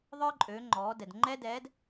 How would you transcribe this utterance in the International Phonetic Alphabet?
ðˤə˞˥ ǃʼøː˩˧ ŋ͡ǃɔː˩˧ dɛ˩dŋ͡ǃɛ˥dɛː˧˥d

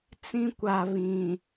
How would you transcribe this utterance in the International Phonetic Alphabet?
t͡sĩ˦kʷa˨ βĩ˨

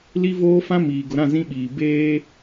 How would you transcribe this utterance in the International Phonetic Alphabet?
li˦voː˦fã˦ miː˨ ɡʊ˨ɾã˦˨ zĩ˦ɓiː˨ beː˦

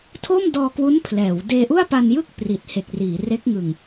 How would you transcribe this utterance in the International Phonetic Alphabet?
tʰo˥˩mdɔː˧kwu˦˥n pʰlɛː˩˦w deː˧ʔu˥˩a̯pa˧njɯ˥˩k̚ pri˨˩t̚he˨˩k̚riː˩˦ re˦˥k̚ŋɯ˨˩ŋ

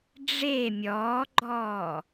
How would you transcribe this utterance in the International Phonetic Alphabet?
ɖ͡ʐe mʲɔːɡ͡ǃɔː

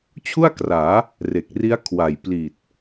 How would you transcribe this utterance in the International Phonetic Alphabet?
t͡ɕʰu˥˩a̯kraː˩˦ | re˨˩k̚ri˦˥a̯kʰwa˨˩jpliː˨˩t̚

